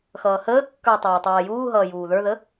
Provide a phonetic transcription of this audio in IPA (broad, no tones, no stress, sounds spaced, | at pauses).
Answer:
x ʌː h əː kː ə˞ y̯ tˤ əː u̯ tˤ ʌː j uː ɦ ʌː j uː ð ə˞ ð ə